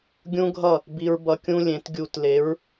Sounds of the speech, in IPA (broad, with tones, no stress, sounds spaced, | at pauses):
ɡʲ ũ˦ ɡʱ ʌ˦˨ | b i˧ ɹ b ʌ˧ kʲ ũ˦ lʲ ẽ˨˦ t ɡʲ u˧ t l e˨˦ ɹ